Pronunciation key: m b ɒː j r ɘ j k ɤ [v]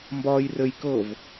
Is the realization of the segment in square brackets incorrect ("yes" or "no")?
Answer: no